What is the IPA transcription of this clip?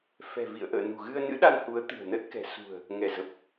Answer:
f ɛ̤˨˩ v ḭ˧˨ ə̯ ʔ ə̰ː˧˨ n ṳ˨˩ ɣ ɨ˧ ə̯ n ɨ̰˧˥ ɗ a˧ n h u˨˦ ə̯ t̪ ɨ̤˨˩ ə̯ n ə˦˥ t̚ k ɛ̤˨˩ s ṳ˨˩ ə̯ | ŋ ɛ˧˩ z ə˨˩ p̚

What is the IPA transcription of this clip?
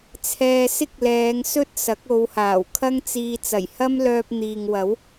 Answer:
t͡sʰ ɛː˧ s ɪ˥ k̚ l ɛː˨˧ ŋ s ɵ˥ t̚ s ɐ˨˥ k̚ o˨˧ w h aː˨˩ w kʰ ɐ˥ ŋ t͡s iː˧ t͡s ɐ˨˩ j h ɐ˥ m l œː˧ p̚ n̪ iː˨ ŋ w ɐ˨˥ w

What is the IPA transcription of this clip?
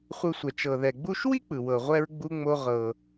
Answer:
χʷ ɯ˨ sʷ ɛ˩ t͡ʃ ɤ˩ ð ɛ˩ ɡ͡b u˦ ʃ w i˥ k͡p ɯ˩ w ɤ˩ ʁʷ ɛ˨ ɹ ɡ͡b u˨ ŋ͡m o˨ ʁ ɤ˩

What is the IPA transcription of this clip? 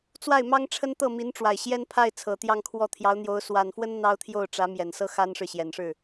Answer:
t͡s w a˥˩ ɪ̯ m ɑ˥ ŋ ʈ͡ʂʰ ə˥ n t̪ ɤ˥˩ m i˧˥ n ʈ͡ʂ w a˨˩ ɪ̯ ɕ j ɛ˥ n pʰ a˥˩ ɪ̯ t͡sʰ ɤ˨˩ t̪ j ɑ˥˧ ŋ kʰ w ɔ˥˩ t̪ʰ j ɑ˧˥ ʊ̯ n̪ j o˧˥ ʊ̯ s w a˨˩ n f w ə˥ n n̪ ɑ˥ ʊ̯ t̪ʰ j o˥˩ ʊ̯ ʈ͡ʂ ä˧˥ m j ɛ˨˩ n s ɤ˥ x a˥ n ʂ ɻ̩˨ ɕ j ɛ˨˩ n ʂ ɻ̩˥˩

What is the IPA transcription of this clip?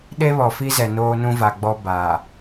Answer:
ɗ e˦ β ɔ˨ f i˦ z ɛ˨ n oː˦ n ũ˦ v a˨ ɡ͡b ɔ˦ b aː˨

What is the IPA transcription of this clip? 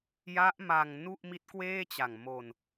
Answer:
j a˦˥ ʔ m a˧ ŋ n u˥˩ ʔ m i˦˥ t̚ k w eː˥˩ t͡ɕ a˨˩ ŋ m o˧ n

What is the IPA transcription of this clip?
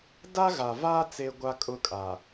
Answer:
d a˦ ɣ a˨ v aː˦ t͡s eː˦ ɡʷ a˦ kʼ ʊ˦ kʼ a˨

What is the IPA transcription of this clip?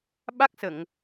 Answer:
ɓ a˦˥ k̚ s ə˨˩˨ ŋ

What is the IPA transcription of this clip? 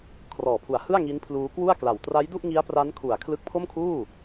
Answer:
kʰ r ɔː˨˩ pʰ u˨˩ a̯ h ɯ˥˩ a̯ ŋ i˦˥ n pʰ l uː˦˥ k w u˥˩ a̯ k l a˨˩ w t r a˦˥ j d u˥˩ ʔ ŋ i˦˥ a̯ p r a˦˥ n kʰ u˨˩ a̯ kʰ l ɯ˦˥ k̚ pʰ o˥˩ m kʰ uː˥˩

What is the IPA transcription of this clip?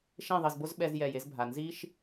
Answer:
ʃ ẽ˦˨ ðˤ i˨ z b o˦ z ɓ ɛ˦ z j ɛ˦˨ j e˦ z bʱ a˨ n z i˦ ʃ

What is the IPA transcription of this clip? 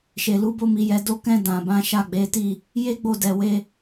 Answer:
ʃ e˨ l u˨˦ b o˦ m i˧ j ɛ˧ d o˧ k ɛ̃˧ d ã˨ b ã˨˦ ʃ a˦˨ ɡ͡b e˨˦ t i˦˨ | j e˦ ɡ͡b o˦˨ d ɛ˨ w e˧

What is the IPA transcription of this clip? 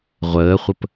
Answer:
ʁʷ əː χʷ ə p

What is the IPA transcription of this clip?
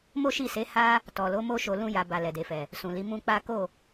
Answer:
m o˦ ʃ i˦˨ s e˨˦ h a˦ | t ɔ˨ l o˨˦ m o˦ ʃ o˧ l ũ˦ j a˧ b a˧ l ɛ˨ d e˨ f ɛ˨ | s ũ˨ l i˨˦ m ũ˦ k͡p a˦ k o˦˨

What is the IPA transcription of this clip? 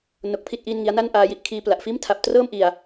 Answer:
n o˦˥ k̚ pʰ i˥˩ t̚ ʔ iː˥˩ n ŋ i˦˥ a̯ n a˥˩ n ʔ aː˦˥ j i˦˥ ʔ kʰ iː˧ p l a˨˩ ʔ f iː˥˩ m tʰ a˨˩ p̚ t r ɤː˥˩ m ʔ i˨˩ a̯

